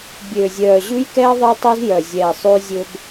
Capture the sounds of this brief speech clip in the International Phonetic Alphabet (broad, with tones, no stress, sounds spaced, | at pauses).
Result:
bʲ øː˨ zʲ œː˨ ʑ ʉ˦ j k ɛː˦ ðˤ ɛ˦ tˤ ʉ˦ z j œ˨ zʲ ɛː˨ sˤ ʉ˦ zʲ ɵ˦ b